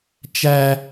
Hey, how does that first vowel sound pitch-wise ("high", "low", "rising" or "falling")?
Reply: high